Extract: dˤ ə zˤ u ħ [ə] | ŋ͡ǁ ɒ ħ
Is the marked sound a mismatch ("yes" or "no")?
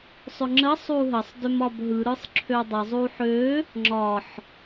yes